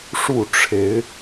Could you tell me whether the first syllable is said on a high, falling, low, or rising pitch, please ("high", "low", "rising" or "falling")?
falling